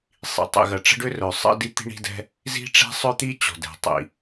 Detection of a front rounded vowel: present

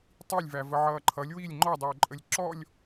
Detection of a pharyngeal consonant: present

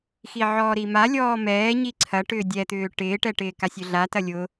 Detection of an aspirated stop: present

